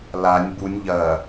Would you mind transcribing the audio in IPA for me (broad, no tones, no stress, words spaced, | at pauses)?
lanʲ bunʲ ʎɐ